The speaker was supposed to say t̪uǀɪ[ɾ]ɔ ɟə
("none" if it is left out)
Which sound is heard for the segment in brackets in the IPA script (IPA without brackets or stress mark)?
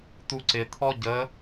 t̪ʰ